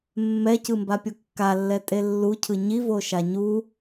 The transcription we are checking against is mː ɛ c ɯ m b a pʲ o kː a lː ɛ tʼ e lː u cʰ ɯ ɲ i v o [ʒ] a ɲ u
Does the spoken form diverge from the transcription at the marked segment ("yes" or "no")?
yes